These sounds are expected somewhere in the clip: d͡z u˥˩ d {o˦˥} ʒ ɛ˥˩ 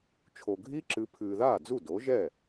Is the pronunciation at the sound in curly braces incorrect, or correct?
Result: incorrect